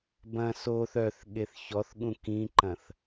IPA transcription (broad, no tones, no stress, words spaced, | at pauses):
bɐ̃ soθ œθ ɠeθçɔθ ɠũkĩǃɐ̃θ